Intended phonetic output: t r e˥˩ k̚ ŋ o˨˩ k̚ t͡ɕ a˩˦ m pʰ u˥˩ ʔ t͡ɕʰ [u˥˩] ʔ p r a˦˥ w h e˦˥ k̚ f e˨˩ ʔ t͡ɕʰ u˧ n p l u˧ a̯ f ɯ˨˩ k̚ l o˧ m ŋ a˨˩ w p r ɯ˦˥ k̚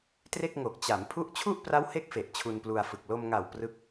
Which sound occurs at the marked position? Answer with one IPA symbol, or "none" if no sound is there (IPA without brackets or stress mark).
u˥˩